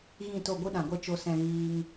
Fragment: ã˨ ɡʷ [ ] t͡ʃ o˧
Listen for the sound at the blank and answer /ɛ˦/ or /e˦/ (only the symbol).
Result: e˦